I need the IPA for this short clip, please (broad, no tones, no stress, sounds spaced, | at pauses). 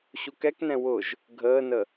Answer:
ɕ u k ɛ k n ɛ̃ w ʊ ʒ | ɡʱ əː n ə